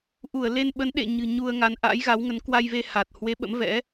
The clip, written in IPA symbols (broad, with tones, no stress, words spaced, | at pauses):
ʔu˧˩ə̯le˧nɓə˨˦n ɗḛ˧˨ɲɨ̤˨˩ ɲu˧ə̯ŋa˨˦n ʔa̰ː˧˥jɣa˨˦wŋə˨˦n kwa˧jve˧ ha˨˩t̚ hwe˨˦ ɓə̰˧˥mvɛ̰˧˥